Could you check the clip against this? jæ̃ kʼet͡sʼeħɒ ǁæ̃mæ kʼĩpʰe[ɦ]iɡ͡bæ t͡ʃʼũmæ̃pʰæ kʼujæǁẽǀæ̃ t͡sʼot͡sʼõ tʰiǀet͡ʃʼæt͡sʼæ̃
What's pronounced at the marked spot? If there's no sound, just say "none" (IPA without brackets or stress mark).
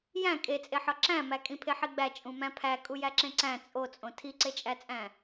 ħ